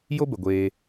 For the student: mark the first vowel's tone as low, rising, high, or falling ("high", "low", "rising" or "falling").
high